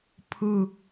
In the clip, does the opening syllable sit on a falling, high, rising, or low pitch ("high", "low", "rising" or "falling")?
falling